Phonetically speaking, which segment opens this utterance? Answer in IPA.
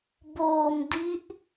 b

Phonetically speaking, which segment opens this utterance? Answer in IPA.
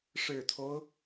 ʂ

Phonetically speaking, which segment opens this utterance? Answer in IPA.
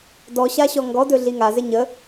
d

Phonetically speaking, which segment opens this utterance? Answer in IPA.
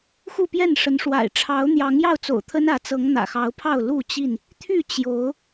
x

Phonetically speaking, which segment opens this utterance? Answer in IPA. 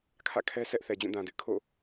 kʰ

